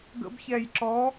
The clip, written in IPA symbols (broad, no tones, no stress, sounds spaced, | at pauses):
ɡ ə̰ b ç ɛ j ǁ ɔ